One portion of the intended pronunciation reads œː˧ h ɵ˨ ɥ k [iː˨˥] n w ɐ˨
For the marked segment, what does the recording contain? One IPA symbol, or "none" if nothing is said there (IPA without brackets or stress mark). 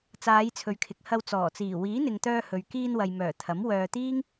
iː˧